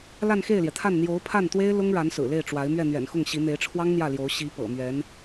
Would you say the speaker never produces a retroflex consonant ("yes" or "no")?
no